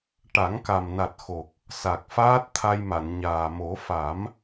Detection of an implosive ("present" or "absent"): absent